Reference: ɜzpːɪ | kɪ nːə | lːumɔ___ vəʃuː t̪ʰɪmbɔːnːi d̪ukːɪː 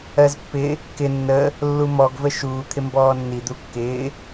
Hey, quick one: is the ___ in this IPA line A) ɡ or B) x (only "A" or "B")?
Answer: A